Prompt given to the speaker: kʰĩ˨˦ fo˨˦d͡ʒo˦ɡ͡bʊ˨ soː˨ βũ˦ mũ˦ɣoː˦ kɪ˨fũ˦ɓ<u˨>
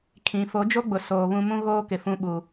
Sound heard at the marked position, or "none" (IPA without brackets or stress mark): u˨